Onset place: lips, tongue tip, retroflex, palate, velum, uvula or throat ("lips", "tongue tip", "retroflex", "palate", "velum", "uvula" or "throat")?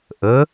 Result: throat